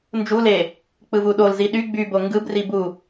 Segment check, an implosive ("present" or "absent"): present